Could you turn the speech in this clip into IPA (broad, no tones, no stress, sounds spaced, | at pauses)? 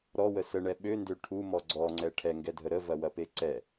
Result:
ɾ ɔ w ə s ə ɳ ɛ ɓ ø n d ø ʈʰ u m ɔ ɡ͡ǀ ɔ ŋ͡ǀ ɛ ʈʰ ɛ ŋ ɡ ɛ dʱ ə ɾ ə v ɐ w ɐ p e ǀ ɛ